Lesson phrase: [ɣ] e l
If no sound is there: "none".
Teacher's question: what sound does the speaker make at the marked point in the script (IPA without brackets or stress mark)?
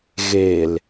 ɣ